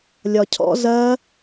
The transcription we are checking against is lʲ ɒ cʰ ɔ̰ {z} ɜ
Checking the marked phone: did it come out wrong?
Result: no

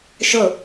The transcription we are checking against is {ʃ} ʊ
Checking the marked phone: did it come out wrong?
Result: no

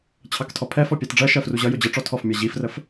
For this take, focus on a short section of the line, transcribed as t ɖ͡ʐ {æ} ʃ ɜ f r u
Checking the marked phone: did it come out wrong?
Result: yes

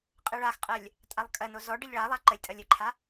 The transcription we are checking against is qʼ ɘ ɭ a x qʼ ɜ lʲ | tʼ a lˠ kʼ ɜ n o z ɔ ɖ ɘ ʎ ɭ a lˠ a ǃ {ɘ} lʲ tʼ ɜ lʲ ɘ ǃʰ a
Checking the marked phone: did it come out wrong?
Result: no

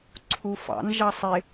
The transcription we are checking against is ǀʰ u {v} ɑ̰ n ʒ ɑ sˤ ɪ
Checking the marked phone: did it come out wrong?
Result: yes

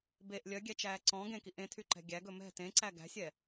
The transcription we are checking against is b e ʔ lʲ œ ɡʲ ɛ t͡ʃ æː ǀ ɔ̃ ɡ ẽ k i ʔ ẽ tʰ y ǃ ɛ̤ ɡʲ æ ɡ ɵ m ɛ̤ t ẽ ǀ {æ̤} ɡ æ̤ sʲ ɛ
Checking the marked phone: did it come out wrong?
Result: yes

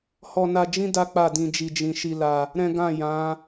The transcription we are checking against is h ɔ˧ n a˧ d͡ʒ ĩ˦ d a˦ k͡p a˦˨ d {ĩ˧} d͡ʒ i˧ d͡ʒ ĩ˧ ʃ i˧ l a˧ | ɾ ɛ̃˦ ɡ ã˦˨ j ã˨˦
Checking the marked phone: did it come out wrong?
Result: no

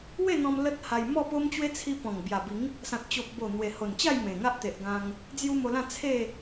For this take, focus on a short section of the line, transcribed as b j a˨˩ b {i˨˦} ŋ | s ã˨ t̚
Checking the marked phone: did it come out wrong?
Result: no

